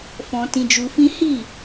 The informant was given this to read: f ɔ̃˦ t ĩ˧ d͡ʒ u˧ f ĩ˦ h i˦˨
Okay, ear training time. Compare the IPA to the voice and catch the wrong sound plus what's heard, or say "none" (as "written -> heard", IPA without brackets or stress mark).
ɔ̃˦ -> ɔ̃˧